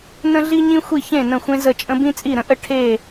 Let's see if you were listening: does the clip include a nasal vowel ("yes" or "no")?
yes